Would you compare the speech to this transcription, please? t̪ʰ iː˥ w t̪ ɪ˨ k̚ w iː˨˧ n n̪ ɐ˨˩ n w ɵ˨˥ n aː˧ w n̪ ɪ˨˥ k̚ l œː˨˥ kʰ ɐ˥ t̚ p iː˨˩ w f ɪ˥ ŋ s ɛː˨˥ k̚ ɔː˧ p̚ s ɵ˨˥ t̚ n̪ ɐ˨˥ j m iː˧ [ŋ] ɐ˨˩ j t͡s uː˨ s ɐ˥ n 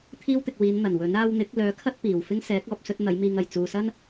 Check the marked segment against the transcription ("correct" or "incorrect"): correct